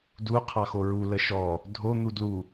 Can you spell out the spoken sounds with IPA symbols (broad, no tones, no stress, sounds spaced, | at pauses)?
d u qʰ ɑ x o ɹ u l ə ʃ ɔ | dʱ o n̪ u d l u